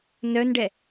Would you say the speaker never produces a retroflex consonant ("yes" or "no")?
no